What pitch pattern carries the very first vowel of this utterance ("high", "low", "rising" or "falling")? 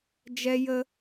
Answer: high